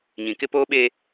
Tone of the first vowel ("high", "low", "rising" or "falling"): low